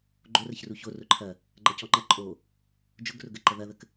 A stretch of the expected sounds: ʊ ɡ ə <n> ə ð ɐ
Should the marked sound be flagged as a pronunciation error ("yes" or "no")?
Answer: yes